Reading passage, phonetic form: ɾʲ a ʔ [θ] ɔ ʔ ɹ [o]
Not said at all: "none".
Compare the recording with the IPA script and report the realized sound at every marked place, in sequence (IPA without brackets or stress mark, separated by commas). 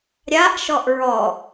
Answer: ʃ, ɔ